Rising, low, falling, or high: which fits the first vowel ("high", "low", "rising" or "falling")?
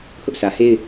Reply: high